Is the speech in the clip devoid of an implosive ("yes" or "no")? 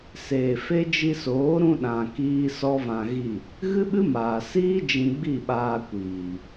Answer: no